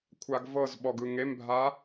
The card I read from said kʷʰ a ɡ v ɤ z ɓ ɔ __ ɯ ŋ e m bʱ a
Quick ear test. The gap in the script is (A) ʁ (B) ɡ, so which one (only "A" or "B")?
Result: B